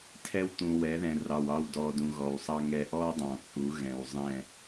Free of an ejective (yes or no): no